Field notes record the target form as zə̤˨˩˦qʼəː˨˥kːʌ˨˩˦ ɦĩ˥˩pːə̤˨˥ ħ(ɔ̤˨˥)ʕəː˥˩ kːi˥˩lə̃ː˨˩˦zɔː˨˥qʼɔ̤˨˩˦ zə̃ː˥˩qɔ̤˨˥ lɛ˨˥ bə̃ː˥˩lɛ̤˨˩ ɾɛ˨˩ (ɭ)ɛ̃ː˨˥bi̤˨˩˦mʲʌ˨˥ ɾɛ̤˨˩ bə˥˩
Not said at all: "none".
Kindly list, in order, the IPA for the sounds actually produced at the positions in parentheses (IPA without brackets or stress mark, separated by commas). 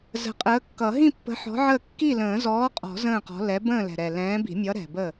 ɔ̤˨˥, l